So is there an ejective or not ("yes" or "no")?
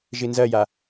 no